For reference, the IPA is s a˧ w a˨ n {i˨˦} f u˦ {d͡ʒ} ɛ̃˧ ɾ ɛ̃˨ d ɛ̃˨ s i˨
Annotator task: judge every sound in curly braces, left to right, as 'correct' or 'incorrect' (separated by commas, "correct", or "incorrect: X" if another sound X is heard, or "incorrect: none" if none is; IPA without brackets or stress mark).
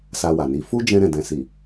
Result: correct, correct